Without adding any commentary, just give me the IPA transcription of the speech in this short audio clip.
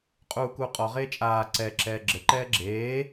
qʼ uː k uː qʼ ɔ ʁ eː t͡ʃʼ aː ǀ ɛ ǁ ɛː ɡ͡ǁ ɘ ǃ ɛː ɡ͡ǁ eː

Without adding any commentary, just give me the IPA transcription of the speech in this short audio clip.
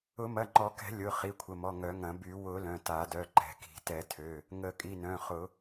ʊ˨˩˦ m ɐ˩˧˩ ŋ͡ǃ ɔ˨˩˦ k ɛ̤˨˩˦ lʲ ʊ˩˧˩ χ i˩˧˩ kʷʰ ə˩˧˩ m ɔ˩˧˩ ŋ œ˨˩˦ ŋ ɐ̃˨˩˦ b y˨˩˦ w ʊ˨˩˦ l œ̃˩˧˩ t a˨˩˦ d œ˩˧˩ ǃ ɛ̤˨˩˦ k i̤˨˩˦ t ɛ˨˩˦ tʰ ø˩˧˩ | ŋ ə˨˩˦ kʼ i˩˧˩ n œ̃˩˧˩ χ ʊ˨˩˦

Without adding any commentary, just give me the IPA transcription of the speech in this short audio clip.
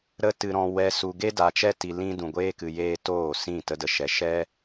ɾ ə˧ t ɨ˨ ɾ ɔ̃˨ w ɛ˨ s u˨ ɡ e˦ d a˨ t͡ʃ ɛ˧ t i˨ l ĩ˧ d ũ˨ ɡʷ eː˦ k ɨ˨ j eː˦ t oː˦˨ s ĩ˦˨ t ə˧ d ə˨ ʃ ɛ˨ ʃ ɛ˦

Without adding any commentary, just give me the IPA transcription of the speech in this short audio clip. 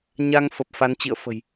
ɲ a˧ ŋ f ə˨˩ p̚ f a˨˦ n t͡ɕ ḭ˧˨ ə̯ f ə̤˨˩ j

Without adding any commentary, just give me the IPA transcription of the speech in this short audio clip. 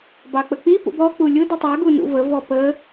b ɑ k͡p ə k͡p i p ṵ b ɔ k͡p u lʲ ʊ d ʌ tˤ ə˞ ɡ u n ṵ v ə v ɔ p ə

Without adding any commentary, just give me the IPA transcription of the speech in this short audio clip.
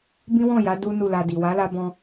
b ĩ˦ w ɔ̃˦˨ j a˨˦ d u˦ n u˦˨ l a˧ d i˨ w a˨˦ l a˧ b ɔ̃˧

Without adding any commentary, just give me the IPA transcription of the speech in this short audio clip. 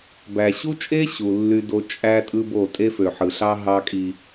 b æ˨ ɕ u˦ t͡ʃʼ e˦ ɕ u˨ lː y˦ d o˦ t͡ʃʼ æ˦ tʼ ɯ˦ b o˦˨ tʼ e˦ f ø˨ ħ ɯ˨ ɬ ɑ˦ ɦ ɑ˦ kʼ i˦

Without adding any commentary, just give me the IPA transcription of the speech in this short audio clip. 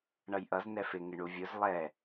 ɳ ʌ j ʔ ʌ z n ɛ f ɪ ŋ ɪ ɳ u vʲ ʊ z lˠ ɛ

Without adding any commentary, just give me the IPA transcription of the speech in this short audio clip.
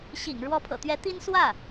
ɕ ḭ˨˩ ŋ ɻ w ɔ˧˥ pʰ ɤ̰˨˩ t̪ ɥ ɛ˧˥ t̪ i˥ n s w ä˥˩

